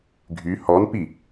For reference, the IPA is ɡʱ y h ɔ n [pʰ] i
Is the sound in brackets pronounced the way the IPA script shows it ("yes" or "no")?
no